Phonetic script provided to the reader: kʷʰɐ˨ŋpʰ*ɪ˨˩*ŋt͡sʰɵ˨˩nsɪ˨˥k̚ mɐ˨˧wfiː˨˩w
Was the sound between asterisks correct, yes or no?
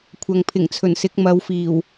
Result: yes